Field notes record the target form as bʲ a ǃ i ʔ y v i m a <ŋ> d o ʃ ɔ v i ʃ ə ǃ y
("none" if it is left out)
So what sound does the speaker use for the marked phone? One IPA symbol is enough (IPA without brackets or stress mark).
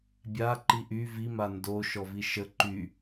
n